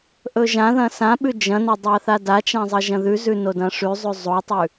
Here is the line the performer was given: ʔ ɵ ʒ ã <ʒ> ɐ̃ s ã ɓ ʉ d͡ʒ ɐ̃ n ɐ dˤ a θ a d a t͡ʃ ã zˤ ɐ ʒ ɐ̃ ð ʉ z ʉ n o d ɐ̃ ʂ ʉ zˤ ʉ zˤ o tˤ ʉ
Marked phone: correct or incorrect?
incorrect